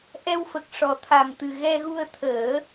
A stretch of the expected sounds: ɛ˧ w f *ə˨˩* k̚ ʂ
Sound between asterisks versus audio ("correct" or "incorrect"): correct